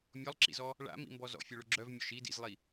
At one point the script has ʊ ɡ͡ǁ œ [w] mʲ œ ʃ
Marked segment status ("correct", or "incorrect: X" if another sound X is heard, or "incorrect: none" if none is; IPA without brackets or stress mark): incorrect: v